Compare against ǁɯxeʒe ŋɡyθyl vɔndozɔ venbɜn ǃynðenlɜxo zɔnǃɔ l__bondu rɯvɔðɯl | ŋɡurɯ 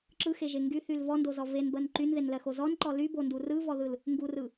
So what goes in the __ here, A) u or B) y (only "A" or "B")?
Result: B